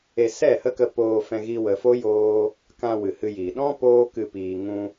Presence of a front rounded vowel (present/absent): absent